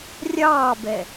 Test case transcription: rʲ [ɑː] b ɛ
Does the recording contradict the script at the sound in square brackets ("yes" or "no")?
no